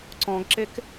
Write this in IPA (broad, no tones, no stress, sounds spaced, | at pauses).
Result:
ǀ ɔ̃ ɡ ǁ e k